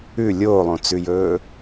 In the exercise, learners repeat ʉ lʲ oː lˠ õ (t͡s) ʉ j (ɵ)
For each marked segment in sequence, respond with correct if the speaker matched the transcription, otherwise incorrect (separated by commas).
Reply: correct, incorrect